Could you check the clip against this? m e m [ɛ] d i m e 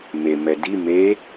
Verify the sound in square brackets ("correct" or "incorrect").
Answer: correct